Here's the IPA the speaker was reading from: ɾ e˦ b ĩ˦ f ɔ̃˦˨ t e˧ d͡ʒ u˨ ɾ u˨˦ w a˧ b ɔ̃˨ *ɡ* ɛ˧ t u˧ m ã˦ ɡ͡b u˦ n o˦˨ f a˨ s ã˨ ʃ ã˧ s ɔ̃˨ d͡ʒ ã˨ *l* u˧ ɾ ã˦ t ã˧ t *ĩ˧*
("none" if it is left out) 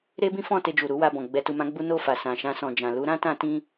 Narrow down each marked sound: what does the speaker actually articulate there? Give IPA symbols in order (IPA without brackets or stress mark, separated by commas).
ɡ͡b, l, ĩ˧